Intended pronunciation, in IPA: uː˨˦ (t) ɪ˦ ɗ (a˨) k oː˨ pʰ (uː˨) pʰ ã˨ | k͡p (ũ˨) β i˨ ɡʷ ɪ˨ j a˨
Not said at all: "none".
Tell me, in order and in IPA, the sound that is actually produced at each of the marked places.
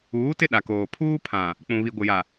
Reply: t, a˨, uː˦, ũ˨

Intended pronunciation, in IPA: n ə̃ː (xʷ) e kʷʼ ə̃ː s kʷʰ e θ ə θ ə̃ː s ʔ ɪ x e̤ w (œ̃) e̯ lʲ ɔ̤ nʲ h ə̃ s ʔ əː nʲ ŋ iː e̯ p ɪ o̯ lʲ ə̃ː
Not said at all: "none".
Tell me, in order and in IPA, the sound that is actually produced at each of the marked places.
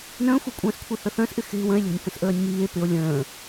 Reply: xʷ, ə̃

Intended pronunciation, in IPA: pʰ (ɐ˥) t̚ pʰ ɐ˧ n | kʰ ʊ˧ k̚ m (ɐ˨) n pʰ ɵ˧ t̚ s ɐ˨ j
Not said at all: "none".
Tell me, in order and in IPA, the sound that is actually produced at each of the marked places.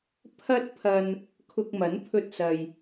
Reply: ɐ˥, ɐ˨˥

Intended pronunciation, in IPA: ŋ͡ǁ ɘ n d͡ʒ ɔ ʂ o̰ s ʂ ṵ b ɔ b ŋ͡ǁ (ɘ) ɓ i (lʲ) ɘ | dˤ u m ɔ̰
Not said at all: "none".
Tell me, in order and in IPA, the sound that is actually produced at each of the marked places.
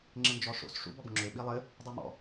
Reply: ø, lˠ

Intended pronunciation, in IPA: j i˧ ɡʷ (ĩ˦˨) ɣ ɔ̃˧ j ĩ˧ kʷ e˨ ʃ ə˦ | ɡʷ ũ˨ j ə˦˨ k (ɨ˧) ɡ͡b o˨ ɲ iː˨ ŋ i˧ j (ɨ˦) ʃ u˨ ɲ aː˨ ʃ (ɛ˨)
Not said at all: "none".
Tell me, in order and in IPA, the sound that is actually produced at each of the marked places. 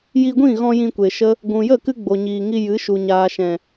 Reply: ĩ˦˨, ɨ˧, ɨ˨˦, ɛ̃˨

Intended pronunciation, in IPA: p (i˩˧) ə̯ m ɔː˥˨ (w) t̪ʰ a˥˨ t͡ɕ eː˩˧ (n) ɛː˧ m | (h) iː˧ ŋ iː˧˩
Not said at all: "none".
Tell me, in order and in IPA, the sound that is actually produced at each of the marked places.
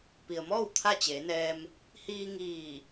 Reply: i˩, w, n, h

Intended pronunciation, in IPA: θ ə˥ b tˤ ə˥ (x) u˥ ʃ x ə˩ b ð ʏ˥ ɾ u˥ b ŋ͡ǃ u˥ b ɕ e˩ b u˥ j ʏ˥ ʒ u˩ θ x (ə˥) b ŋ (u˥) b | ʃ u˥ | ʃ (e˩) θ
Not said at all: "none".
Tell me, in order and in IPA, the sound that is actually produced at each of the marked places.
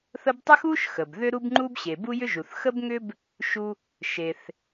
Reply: x, ə˥, ʏ˥, e˩

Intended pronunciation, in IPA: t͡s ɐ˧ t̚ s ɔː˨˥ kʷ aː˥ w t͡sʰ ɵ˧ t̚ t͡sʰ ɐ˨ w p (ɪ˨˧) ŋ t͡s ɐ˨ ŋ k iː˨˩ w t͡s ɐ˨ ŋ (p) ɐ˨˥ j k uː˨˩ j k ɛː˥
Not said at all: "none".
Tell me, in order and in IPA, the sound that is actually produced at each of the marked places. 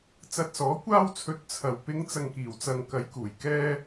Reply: ɪ˨˧, k

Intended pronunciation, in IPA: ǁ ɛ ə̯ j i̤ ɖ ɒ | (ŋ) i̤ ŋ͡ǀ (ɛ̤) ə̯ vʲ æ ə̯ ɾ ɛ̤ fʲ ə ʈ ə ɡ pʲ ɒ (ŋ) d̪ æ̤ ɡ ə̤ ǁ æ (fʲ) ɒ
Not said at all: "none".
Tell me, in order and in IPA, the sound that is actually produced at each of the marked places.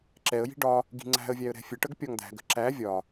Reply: ɡ, æ̤, ŋ, vʲ

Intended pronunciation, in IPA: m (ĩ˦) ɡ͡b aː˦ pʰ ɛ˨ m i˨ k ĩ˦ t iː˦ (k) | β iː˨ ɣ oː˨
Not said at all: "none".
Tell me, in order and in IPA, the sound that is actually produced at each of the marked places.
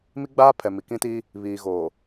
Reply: i˦, none

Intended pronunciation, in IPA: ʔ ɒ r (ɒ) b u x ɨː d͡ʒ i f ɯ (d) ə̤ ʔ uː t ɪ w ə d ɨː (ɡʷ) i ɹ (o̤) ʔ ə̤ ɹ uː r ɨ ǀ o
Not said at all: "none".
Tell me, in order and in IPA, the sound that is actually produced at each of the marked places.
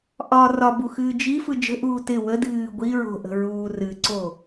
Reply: ɒ, d͡ʒ, ɡʷ, o̤

